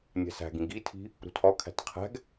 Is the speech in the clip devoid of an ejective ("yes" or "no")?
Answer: yes